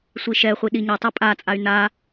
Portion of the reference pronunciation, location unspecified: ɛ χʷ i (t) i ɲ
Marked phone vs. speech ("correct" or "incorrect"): incorrect